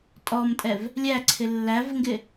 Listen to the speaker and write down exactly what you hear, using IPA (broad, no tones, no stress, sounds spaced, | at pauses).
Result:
tʼ ɔ m tʼ ɛ v | lʲ æ ǀʰ ɪ lː æ v ŋ ɡ ɪ